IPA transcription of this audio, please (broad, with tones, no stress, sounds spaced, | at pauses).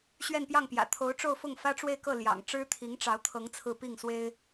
ɕ ɥ ɛ˥˧ n p j ɑ˥˩ ŋ p j ä̰˨˩ t̪ʰ o˧˥ ʊ̯ ʈ͡ʂ o˥˧ ʊ̯ f ʊ˥˩ ŋ f ä˥ ʈ͡ʂ w e˥˧ ɪ̯ k ɤ˥˩ l j ɑ̰˨˩ ŋ ʈ͡ʂ ɻ̩˥ t̪ʰ i˧˥ ŋ ʈ͡ʂ ɑ˧˥ ʊ̯ t̪ʰ ɤ˧˥ ŋ t͡sʰ ɹ̩˥˧ p i˥˩ ŋ s w e˥ ɪ̯